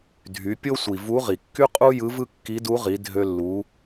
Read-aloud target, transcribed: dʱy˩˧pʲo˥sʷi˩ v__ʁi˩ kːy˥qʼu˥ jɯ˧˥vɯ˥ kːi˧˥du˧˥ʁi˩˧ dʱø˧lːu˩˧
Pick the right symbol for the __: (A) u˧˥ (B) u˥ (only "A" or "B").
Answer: A